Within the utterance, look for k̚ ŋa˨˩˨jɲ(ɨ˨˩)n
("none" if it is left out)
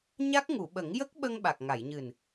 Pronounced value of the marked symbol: ɨ˨˩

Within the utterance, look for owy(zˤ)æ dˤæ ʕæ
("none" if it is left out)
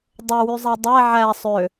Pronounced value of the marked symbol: zˤ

